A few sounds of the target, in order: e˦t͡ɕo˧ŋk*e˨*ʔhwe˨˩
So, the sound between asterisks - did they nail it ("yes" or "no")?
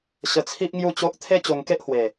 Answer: no